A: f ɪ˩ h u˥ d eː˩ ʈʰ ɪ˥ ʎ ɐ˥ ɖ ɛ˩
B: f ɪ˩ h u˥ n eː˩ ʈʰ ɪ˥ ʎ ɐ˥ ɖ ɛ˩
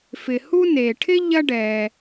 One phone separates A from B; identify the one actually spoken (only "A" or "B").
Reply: B